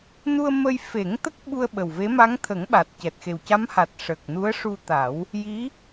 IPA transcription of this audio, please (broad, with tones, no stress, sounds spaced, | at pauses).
n u˧ ə̯ m ə˧ j f e˨˩˦ ŋ t̪ ə˦˥ k̚ ɓ u˧ ə̯ ɓ ə˨˩ w v e˧˥ m a˧˥ ŋ t̪ʰ ə˨˩˦ ŋ ɓ a˨˩ t̚ c ɛ˨˩ t̚ x e˨˩ w c a˧˥ m h a˨˩ t̚ ʂ əː˨˩ k̚ n u˧˥ ə̯ ʂ u˧ t̪ a˨˩˦ w | j i˧˥